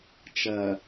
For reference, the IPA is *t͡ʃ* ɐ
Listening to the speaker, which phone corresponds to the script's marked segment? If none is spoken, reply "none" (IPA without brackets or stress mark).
t͡ʃ